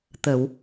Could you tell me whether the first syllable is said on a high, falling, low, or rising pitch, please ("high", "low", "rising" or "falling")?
low